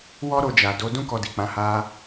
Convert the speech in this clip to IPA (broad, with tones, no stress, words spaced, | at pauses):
wɔ˦ ɾo˧d͡ʒa˨ do˨˦ dũ˦kɔ˧di˨k͡pã˨˦ ha˦